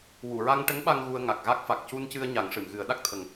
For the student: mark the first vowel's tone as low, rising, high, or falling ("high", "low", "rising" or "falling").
low